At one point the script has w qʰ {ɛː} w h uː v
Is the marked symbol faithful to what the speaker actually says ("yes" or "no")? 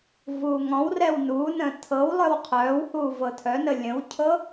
no